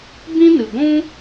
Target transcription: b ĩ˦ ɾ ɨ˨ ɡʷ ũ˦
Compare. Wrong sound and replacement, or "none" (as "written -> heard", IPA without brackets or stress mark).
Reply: ɾ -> n